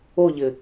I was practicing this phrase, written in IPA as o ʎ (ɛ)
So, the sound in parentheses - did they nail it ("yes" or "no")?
no